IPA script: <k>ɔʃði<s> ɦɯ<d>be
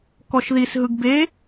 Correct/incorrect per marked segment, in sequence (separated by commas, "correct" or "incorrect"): correct, correct, incorrect